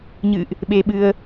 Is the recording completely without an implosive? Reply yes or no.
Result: no